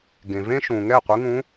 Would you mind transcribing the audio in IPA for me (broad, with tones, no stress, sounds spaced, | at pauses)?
ɡ ẽ˩ v ẽ˧ ʃ ũ˩ ŋ ɛ˥˨ qʷ ɯ˧˥ ŋ ũ˧˥